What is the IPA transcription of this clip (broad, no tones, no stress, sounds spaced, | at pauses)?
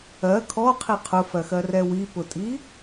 ɜ kʰ ɔ qʰ i qʰ ʊ f ɜ x ɜ r ɛ w i p ʊ tʼ i